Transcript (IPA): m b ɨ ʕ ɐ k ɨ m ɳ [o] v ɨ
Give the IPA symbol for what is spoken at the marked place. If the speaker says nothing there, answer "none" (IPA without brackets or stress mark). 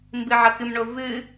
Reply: o